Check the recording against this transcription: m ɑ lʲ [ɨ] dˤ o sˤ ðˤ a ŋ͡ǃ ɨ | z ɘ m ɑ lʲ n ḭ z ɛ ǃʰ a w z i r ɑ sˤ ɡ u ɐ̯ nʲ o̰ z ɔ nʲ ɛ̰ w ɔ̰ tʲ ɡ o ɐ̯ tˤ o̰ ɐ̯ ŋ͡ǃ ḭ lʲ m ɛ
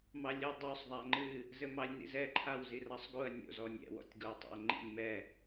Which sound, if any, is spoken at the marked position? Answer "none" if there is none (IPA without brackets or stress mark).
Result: ɨ